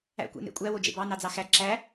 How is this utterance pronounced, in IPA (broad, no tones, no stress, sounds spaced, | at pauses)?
æ̰ kʷ ḛ n ḛ kʷʼ æ w o d͡ʒ ḛ b ɑ n ɑ d͡z ɑ x æ ǁ æ